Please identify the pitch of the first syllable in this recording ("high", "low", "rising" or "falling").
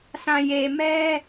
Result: low